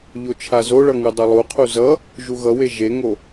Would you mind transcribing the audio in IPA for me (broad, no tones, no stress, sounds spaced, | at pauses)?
ʎ o t͡ʃʰ a z o ɭ ʌ ŋ ɯ dˤ ʌ lˠ u qʰ u z ʌ | ʒ u ɣ ʌ w e ʒ e ŋ o